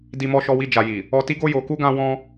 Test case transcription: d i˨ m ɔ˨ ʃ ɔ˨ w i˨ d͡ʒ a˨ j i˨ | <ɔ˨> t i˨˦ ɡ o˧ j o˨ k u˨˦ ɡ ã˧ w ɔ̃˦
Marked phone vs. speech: correct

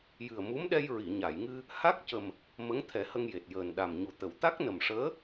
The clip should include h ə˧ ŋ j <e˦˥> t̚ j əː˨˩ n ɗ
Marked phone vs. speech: incorrect: e˨˩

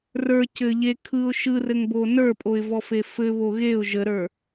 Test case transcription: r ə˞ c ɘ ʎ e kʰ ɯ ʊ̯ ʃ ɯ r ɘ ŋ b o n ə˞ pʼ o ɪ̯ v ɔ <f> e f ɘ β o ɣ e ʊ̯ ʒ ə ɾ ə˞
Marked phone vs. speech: correct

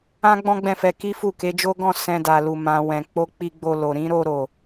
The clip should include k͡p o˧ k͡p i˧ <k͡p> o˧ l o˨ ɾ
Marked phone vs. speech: incorrect: ɡ͡b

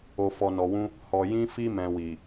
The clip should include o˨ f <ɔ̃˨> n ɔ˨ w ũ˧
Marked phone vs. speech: incorrect: ɔ˨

